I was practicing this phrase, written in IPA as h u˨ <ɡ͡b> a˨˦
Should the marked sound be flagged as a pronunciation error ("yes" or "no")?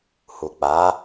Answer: yes